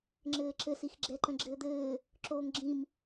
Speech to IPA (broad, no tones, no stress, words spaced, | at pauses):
ŋ͡ǁɘːǁɘsix ɡ͡ǁɛǃə̃ɡ͡ǁɘːd̪ɘː | ǁoːŋɡ͡ǁĩm